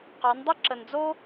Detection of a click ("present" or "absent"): present